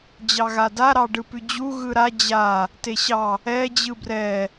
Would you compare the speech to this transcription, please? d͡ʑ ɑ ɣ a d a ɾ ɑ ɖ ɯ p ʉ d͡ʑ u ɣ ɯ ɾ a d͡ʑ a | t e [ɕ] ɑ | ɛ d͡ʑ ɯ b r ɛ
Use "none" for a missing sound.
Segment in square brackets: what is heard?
ɕ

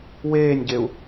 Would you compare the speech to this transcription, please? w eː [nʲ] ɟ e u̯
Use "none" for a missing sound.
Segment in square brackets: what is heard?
nʲ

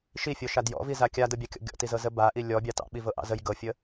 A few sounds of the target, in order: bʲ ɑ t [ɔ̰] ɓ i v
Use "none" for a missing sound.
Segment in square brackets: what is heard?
ɑ̰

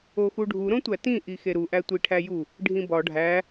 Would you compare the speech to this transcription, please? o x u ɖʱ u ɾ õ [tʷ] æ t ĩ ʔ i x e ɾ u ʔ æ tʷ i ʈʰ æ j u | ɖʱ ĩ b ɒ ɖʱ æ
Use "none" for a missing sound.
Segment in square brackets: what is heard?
tʷ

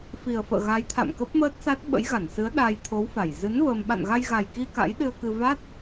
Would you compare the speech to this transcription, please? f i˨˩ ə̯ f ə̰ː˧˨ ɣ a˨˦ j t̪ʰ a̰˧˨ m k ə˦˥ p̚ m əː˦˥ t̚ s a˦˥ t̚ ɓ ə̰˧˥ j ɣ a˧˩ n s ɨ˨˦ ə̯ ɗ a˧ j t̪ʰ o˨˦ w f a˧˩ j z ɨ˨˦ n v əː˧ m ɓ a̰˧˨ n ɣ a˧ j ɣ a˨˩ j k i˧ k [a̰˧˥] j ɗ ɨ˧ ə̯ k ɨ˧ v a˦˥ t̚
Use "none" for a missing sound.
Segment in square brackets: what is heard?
a̰˧˥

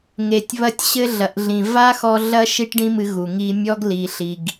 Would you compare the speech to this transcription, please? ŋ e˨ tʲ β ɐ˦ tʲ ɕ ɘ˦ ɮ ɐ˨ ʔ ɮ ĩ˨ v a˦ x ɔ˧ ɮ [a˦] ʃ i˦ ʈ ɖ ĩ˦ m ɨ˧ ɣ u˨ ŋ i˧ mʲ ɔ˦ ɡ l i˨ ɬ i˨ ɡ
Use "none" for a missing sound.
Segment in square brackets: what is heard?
ɐ˦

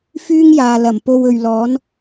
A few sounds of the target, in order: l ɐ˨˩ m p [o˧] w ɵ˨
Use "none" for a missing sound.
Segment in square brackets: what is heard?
o˧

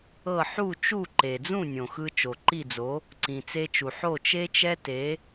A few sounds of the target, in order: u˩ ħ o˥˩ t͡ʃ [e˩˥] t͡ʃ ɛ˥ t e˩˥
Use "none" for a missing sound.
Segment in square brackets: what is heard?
e˥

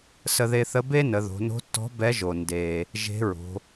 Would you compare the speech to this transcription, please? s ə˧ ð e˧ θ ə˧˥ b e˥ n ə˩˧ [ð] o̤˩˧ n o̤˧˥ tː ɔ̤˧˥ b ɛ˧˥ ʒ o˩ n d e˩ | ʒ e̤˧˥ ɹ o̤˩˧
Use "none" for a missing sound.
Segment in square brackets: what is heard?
ð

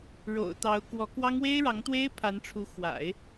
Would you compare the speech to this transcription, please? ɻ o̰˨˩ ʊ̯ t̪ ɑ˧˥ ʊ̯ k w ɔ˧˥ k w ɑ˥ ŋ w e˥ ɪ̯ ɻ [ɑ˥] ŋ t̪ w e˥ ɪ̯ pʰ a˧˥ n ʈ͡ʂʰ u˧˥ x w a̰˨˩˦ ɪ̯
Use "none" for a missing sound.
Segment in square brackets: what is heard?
ɑ˧˥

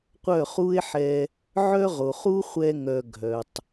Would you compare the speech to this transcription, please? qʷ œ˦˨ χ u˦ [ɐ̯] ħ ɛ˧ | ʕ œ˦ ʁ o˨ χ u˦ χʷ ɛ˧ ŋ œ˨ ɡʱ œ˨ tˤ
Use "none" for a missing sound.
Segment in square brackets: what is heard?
e̯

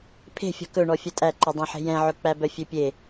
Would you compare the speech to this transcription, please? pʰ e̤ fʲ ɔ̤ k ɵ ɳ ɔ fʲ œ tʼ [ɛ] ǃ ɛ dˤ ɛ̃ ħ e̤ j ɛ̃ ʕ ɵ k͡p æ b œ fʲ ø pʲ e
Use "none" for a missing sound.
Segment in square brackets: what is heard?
æ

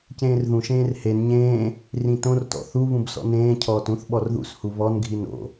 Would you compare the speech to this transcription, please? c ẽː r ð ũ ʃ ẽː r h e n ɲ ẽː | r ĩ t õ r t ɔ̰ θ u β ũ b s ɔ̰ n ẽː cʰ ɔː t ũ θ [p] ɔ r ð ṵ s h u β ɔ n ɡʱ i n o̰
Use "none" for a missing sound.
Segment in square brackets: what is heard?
ɓ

